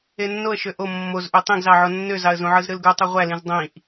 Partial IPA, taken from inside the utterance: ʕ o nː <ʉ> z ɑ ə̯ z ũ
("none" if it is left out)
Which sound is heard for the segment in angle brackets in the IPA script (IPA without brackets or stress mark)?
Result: ø